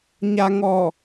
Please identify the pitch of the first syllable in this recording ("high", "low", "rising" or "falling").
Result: low